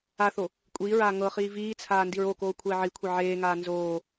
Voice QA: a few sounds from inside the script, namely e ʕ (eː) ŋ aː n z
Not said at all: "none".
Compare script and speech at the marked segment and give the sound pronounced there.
eː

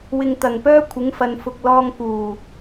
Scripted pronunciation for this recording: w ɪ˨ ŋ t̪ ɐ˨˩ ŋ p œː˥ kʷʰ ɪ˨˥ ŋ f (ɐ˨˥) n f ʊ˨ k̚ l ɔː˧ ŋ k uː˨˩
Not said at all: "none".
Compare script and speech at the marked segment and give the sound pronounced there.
ɐ˨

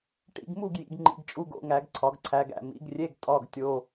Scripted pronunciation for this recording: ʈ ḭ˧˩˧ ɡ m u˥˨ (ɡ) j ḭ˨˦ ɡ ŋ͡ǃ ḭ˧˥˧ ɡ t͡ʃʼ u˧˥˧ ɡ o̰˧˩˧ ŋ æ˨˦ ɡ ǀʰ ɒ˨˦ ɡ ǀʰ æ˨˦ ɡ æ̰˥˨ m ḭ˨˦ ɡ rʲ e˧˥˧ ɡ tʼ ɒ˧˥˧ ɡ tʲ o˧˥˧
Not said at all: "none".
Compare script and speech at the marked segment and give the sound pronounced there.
ɡ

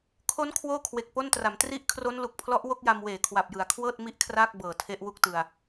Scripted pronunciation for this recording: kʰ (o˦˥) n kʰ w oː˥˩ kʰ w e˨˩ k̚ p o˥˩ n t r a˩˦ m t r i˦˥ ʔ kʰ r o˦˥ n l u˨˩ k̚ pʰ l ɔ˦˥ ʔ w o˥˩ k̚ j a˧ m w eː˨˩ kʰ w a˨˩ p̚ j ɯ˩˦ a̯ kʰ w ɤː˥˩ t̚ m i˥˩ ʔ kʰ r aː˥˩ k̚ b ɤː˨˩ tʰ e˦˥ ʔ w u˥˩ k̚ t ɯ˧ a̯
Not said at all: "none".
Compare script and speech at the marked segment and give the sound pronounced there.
o˦˥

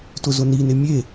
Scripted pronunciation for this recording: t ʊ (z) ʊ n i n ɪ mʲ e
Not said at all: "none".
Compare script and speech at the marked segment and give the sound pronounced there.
z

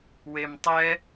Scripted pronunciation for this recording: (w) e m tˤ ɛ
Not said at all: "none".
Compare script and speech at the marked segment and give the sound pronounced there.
w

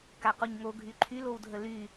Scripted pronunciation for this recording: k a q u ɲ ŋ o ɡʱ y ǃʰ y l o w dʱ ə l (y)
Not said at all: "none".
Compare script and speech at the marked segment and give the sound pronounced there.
y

